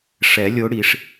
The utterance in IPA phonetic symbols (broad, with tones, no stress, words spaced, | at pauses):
ʂɛ˨˩˦lʲo˨˦ ɽi˨˩˦ʂ